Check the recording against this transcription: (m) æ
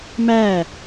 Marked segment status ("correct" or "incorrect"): correct